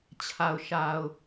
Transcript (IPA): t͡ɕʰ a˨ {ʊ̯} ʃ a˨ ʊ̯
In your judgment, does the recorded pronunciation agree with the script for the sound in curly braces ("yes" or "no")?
yes